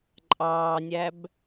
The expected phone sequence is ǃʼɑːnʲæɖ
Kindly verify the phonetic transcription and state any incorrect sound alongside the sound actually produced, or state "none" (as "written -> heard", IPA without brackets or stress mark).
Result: ɖ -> b